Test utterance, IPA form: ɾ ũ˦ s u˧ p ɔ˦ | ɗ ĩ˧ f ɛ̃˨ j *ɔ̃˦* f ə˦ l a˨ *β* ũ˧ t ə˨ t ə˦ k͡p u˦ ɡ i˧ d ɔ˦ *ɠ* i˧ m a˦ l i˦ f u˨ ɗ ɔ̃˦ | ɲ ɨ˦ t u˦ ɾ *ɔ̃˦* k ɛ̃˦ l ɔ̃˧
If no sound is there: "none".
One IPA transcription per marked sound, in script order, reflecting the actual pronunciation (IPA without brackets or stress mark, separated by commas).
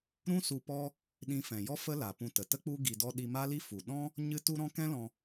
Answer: ɔ˦, p, ɗ, ɔ̃˦